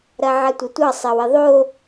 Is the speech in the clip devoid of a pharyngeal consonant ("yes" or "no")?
no